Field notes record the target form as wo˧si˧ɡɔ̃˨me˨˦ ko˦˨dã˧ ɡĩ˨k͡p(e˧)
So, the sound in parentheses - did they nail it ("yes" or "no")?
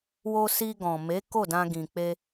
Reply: yes